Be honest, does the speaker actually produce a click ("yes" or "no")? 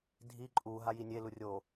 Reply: yes